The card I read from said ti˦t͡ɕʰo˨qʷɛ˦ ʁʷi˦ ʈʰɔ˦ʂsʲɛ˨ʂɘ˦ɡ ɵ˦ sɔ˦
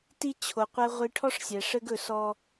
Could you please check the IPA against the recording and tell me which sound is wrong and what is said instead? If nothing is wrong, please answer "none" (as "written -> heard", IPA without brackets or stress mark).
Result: none